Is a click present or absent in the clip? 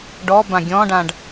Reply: absent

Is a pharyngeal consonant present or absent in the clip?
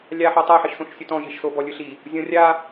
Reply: present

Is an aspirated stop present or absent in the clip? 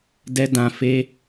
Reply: absent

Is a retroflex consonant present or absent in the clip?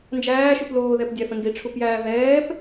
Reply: present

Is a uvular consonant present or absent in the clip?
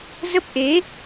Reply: absent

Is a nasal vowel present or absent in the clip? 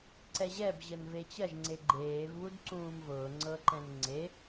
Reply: present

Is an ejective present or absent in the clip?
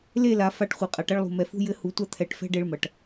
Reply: present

